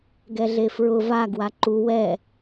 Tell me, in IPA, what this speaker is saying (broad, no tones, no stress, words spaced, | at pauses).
ɡɛɮefɹʊ va ɡwaǃu wɛ